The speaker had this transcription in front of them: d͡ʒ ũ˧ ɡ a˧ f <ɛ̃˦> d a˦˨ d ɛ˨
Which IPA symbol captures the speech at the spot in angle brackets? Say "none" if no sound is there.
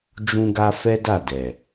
ɛ˦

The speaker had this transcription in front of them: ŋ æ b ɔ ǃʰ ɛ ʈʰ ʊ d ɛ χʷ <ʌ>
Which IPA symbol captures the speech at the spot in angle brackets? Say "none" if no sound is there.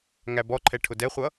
ʌ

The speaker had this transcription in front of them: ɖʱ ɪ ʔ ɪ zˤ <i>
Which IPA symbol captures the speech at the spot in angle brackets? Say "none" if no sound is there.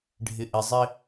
ɪ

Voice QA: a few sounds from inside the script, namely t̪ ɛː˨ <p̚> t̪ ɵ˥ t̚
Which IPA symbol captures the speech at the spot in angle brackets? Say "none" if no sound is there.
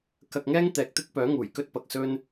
k̚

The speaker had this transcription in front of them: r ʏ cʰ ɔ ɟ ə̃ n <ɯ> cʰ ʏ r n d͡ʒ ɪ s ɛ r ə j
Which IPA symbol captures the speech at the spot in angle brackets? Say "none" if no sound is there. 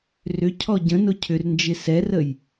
ʊ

